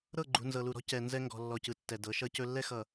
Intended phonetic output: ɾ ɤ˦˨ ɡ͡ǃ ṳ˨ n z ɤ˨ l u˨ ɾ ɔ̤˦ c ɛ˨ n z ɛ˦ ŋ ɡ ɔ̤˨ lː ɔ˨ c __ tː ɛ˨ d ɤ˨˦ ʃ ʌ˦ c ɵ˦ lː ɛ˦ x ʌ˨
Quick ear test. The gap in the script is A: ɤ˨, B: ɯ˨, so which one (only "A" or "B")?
B